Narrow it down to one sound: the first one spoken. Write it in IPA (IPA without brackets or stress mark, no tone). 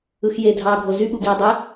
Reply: ɯ